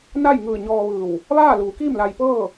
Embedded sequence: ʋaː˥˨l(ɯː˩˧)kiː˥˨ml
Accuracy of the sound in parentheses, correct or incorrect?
incorrect: uː˩˧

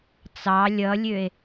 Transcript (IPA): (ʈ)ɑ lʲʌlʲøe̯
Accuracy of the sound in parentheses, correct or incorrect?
incorrect: t͡s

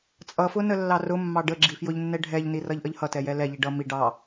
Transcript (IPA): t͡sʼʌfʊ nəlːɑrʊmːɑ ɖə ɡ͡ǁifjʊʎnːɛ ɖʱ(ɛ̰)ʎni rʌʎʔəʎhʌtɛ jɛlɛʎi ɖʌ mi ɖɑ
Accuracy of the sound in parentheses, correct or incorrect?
incorrect: ɛ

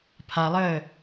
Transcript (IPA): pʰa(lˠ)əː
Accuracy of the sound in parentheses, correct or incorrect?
correct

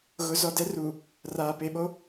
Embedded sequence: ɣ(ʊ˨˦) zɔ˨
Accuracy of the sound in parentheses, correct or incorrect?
correct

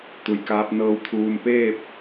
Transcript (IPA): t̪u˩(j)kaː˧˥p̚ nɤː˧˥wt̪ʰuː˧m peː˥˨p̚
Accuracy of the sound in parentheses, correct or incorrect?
correct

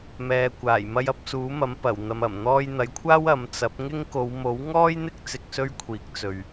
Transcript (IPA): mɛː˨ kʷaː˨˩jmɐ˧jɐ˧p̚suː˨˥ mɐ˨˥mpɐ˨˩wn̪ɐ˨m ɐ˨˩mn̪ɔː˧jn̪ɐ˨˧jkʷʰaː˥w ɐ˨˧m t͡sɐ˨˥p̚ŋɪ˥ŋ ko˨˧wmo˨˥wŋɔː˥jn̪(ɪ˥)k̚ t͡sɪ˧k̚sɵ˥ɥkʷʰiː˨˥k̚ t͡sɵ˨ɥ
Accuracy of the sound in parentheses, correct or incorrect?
correct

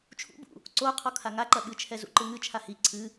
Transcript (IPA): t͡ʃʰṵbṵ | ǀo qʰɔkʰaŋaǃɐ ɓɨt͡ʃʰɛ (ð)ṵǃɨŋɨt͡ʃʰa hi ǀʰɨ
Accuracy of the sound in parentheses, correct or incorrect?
incorrect: z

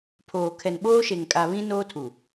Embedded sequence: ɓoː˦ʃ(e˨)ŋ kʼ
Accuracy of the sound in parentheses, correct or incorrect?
correct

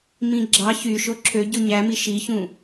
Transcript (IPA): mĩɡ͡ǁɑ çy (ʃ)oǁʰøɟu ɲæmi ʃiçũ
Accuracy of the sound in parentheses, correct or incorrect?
correct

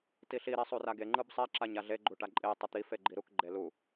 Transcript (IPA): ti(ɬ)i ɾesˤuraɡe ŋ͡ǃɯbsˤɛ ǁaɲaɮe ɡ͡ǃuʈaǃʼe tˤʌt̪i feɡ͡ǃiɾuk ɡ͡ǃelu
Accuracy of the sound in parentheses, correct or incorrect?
correct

